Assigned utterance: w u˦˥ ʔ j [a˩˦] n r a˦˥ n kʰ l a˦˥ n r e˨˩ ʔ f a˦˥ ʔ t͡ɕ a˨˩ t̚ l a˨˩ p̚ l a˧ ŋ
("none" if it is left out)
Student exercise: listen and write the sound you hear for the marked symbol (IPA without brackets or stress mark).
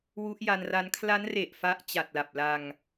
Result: a˧